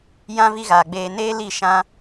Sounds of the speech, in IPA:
j ã˦ v i˦ ɣ aː˨ ɡ͡b eː˧ n eː˦ l i˦˨ ʃ ã˦

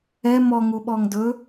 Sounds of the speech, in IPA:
ɛ m ɔ ŋ u ɓ ɔ ŋ d ɵ

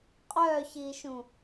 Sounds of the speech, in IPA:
qʼ œ ç i ʃ ũ

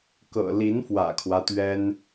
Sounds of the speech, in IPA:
k ɤ̰˨˩ l i˧˥ n f w ä̰˨˩ kʰ w ä˦ t̪ ɥ ɛ˥ n

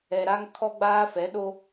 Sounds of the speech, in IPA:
ɛ˨ ɾ a˦ ŋ kʰ ɔ˦ ɡ͡b aː˦ f ɛ˨˦ ɗ o˦

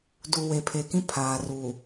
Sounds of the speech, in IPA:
d u˨ w e˨ pʰ e˨ k ĩ˦ pʰ aː˨ r u˨

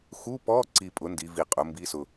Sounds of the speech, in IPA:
x u˧˥˧ p ɔ˧˥˧ ǀ i˧˩ pʼ ʊ˩˥ n d i˩˧ v i˧˩ qʼ ʊ˩˥ m b i˧˥˧ s ʊ˧˩

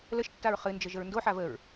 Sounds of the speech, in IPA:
l ə ʃ tː a ɹ χ ɨ n d͡ʒ ə ʒ ə ɹ n d o ħ a v ə ɹ

